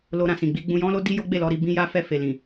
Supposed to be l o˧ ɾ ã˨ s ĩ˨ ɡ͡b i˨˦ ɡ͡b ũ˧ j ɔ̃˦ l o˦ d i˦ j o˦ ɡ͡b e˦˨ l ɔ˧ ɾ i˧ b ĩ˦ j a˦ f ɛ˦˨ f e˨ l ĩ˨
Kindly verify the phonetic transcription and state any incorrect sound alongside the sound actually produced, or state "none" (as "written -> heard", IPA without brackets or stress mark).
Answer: none